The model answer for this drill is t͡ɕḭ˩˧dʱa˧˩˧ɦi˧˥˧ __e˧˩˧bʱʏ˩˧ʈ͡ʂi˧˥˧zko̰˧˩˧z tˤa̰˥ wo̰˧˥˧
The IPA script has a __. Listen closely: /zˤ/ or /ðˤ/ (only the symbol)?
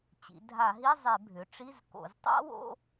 zˤ